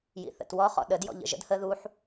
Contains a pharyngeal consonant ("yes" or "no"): yes